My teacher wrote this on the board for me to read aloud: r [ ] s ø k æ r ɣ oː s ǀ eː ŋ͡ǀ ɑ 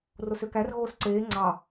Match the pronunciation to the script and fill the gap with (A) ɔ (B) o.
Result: B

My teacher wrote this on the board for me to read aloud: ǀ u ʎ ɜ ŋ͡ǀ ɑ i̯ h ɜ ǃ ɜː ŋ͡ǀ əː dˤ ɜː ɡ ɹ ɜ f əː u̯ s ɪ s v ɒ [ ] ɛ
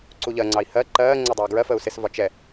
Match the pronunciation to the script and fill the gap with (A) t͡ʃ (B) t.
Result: A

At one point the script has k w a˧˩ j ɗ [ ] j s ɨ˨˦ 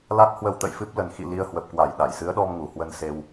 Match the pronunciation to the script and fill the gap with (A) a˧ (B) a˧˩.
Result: B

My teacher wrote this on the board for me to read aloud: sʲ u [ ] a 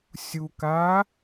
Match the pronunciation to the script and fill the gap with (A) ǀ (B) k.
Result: B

